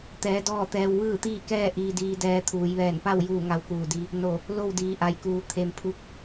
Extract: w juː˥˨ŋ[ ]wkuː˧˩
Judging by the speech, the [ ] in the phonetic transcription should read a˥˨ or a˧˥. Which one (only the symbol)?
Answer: a˧˥